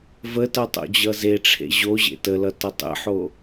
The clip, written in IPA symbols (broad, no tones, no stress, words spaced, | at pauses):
vətʌ tˤo̰d͡ʑʌzeʈ͡ʂʰḛ ʑoʑḛ təlʌ tʌtˤə̰ħo